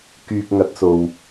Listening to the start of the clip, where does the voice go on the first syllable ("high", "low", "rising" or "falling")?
low